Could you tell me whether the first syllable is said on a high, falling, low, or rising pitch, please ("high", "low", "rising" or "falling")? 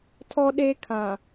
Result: high